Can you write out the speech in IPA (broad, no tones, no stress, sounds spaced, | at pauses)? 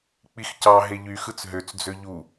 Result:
k͡p i x c ɑ ɦ e ʎ y x ɯ t͡s ɦ ø t͡s d͡z ø ʎ u